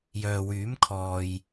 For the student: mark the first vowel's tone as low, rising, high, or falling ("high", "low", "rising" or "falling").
low